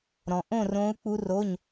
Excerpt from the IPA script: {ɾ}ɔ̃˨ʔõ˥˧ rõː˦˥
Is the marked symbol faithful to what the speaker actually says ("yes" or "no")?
yes